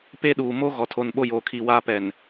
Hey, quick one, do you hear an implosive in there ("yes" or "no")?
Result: yes